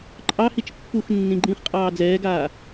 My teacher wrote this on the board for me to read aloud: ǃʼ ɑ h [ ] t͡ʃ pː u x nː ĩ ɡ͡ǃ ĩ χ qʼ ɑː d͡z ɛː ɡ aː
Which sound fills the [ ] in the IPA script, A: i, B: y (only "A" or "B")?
A